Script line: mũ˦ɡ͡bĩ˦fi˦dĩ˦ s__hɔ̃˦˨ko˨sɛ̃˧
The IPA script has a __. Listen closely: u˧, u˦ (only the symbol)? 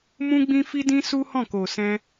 u˦